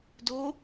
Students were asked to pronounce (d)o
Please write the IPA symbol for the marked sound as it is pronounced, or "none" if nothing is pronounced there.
d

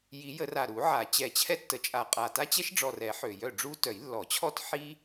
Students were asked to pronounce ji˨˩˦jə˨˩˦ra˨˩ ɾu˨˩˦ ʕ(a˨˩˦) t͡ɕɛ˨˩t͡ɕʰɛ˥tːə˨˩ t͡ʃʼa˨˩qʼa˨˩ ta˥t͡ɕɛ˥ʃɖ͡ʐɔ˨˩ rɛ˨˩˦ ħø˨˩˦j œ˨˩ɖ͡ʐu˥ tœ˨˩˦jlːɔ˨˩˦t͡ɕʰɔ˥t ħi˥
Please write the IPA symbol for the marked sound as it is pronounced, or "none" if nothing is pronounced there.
a˨˩˦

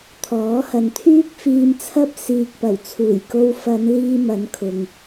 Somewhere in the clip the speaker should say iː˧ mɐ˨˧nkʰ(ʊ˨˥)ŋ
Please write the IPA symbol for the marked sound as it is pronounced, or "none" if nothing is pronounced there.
ʊ˨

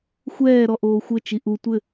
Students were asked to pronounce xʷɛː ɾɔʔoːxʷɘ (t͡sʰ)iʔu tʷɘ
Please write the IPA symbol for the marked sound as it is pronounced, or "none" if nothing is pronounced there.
t͡ʃ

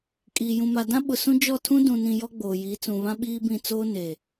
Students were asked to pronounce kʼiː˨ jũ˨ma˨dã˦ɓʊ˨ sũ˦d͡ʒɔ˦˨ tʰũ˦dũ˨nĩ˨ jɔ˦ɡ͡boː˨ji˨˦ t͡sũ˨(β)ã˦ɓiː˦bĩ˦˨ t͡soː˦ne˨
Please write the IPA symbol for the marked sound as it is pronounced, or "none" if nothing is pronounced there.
β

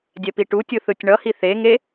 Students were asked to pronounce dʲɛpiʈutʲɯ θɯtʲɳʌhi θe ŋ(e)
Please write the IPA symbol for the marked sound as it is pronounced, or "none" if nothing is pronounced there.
e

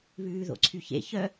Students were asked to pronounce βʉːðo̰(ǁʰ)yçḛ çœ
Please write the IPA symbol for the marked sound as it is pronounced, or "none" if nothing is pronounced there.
ǀʰ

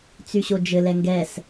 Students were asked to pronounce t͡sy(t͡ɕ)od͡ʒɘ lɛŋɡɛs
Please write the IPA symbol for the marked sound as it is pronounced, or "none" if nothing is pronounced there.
ɕ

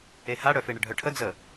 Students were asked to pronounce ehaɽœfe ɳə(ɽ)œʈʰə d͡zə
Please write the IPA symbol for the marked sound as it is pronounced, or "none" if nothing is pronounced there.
ɖʱ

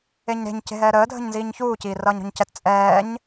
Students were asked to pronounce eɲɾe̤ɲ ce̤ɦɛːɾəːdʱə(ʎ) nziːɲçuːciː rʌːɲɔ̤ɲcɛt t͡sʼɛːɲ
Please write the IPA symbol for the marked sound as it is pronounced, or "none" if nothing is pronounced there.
ɲ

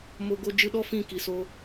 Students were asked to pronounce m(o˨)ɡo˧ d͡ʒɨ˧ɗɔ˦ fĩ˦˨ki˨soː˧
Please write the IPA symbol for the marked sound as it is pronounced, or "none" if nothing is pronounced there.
o˨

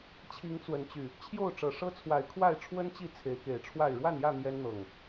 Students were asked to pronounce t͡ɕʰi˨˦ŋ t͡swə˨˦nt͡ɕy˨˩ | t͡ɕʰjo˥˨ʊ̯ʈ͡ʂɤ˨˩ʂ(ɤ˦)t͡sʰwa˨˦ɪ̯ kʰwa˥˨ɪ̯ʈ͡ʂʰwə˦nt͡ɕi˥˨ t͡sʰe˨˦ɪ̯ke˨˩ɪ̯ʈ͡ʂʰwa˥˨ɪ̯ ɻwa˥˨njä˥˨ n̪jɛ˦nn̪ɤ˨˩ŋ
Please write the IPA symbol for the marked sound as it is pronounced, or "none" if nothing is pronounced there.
ɤ˦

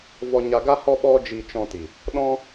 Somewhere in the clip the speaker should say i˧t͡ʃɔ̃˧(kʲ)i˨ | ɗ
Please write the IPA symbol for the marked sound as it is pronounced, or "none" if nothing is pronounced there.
t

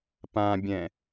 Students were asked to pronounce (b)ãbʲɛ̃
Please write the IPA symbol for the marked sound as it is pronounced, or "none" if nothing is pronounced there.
p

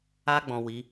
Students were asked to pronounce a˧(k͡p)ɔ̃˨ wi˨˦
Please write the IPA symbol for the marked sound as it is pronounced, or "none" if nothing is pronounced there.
ɡ͡b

